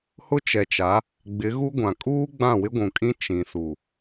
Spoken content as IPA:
hʊ˦t͡ʃɛ˨t͡ʃa˨˦ | ɡ͡bɪ˨˦ ɣu˦ɡʷã˨ kʼuː˦ ɡ͡bã˦˨wɪ˦ɡʷũ˨kʼĩ˦ t͡ʃĩ˨su˨

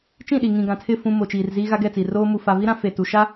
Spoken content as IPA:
t͡ʃĩ˦˨ɗi˨ ŋĩ˨ɡã˨tʰɪ˦˨ fũ˨ mo˨t͡ʃiː˨rziː˦ ɣa˦ɡɛ˦˨t͡si˨ roː˦ mu˨fa˨vi˦ ɾã˦fe˨tu˨ ʃa˦

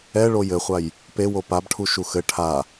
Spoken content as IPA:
ɛ ɭojɘχʷaj | pewo pabʈʰuʃu xɘ ʈʰa

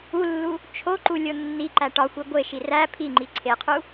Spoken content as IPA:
ulːu | t͡ʃʰoǃu lʲonːiǃæ ʈɒxʷi ɡʷeʃi ræ pʰiŋ͡ǃi ǀʰeqʰu

